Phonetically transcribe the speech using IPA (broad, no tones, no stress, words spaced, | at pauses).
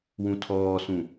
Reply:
wũtʰɔːsũ